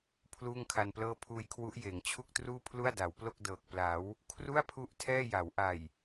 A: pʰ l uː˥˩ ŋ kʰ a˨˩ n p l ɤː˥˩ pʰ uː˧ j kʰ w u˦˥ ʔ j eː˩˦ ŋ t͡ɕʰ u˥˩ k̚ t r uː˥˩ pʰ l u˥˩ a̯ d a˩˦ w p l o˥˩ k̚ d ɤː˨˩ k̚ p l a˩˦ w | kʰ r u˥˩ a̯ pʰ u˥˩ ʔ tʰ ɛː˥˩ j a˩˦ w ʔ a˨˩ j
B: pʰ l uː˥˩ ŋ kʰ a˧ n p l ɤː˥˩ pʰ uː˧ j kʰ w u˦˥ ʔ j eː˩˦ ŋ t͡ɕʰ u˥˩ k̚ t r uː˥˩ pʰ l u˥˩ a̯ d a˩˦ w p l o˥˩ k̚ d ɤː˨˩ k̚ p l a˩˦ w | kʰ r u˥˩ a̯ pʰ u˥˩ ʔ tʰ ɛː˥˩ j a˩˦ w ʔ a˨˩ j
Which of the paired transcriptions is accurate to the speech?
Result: B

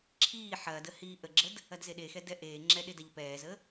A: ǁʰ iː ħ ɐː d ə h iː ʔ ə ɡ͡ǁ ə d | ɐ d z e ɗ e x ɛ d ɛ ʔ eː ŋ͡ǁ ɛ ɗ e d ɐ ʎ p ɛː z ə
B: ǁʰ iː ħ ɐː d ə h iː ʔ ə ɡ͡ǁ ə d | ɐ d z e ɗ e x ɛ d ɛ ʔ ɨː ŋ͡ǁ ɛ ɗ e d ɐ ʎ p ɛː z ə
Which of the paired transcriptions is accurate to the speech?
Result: A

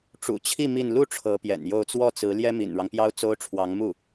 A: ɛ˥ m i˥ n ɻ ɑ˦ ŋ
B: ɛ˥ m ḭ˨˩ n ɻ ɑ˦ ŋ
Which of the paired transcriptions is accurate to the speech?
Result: B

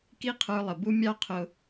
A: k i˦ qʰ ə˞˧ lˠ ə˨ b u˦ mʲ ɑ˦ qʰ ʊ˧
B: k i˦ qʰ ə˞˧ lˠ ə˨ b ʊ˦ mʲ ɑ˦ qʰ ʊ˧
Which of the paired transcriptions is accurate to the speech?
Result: A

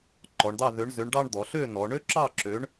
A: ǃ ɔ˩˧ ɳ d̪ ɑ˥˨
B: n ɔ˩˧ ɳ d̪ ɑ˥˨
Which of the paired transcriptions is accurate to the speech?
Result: A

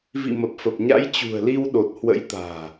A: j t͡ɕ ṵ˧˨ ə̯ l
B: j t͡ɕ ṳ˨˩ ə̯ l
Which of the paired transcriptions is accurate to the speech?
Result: B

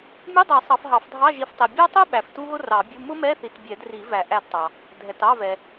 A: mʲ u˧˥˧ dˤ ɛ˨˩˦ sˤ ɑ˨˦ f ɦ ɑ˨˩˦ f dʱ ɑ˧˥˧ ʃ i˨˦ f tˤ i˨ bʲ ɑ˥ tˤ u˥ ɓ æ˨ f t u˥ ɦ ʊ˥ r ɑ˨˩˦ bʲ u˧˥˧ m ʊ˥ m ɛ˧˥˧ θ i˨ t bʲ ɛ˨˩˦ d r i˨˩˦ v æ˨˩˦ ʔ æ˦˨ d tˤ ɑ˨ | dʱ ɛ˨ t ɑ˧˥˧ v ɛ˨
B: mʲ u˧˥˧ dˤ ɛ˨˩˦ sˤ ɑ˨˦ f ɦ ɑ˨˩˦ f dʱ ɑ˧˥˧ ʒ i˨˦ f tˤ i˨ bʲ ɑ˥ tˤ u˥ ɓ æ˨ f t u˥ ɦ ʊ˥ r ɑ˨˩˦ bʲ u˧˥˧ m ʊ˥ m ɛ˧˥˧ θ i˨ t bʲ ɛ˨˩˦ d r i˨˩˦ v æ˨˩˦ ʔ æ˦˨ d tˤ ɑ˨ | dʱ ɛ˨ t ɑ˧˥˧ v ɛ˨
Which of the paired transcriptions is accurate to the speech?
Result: B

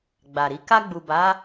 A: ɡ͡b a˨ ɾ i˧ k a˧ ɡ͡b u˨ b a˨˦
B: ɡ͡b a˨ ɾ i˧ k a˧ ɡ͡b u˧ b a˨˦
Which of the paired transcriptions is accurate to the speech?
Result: A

